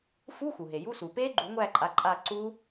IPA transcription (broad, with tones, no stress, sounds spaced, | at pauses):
f u˧˥˧ x u˩ ɦ e˩ j u˧˥˧ s u˩ p e˦˥ ɡ͡ǃ u˨˩˦ ŋʷ æ˦˨ ǃʼ a˨˦ ǃʼ a˦˨ ǀ u˦˥